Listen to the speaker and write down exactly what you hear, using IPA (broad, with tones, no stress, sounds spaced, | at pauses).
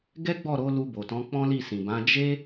ɡ ɛ˦ ɡ͡b ɔ˦˨ ɾ o˨˦ l u˧ b o˨ t ɔ̃˨˦ k͡p ɔ̃˦ l i˦˨ s ĩ˨ b ã˨˦ d͡ʒ e˦